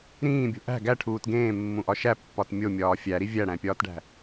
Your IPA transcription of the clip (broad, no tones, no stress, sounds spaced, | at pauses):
ɾ ĩː bʲ o̤ ʔ æ̤ ɡ æ ʈʰ uː t ɡ ẽː mː ũ ʔ ɒ ʃ æ pː ɒ t mʲ o mʲ ɒː fʲ æ ɾ i vʲ æ ɽ æ̃ pʲ ɒː t ɖ æ̤